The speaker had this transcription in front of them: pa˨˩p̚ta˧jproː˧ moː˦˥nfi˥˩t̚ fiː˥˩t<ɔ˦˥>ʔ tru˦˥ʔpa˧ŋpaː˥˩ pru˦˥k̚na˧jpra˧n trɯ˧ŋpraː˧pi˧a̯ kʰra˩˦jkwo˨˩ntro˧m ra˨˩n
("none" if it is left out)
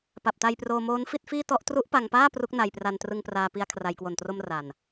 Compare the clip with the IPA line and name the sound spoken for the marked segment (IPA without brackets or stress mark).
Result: ɔ˦˥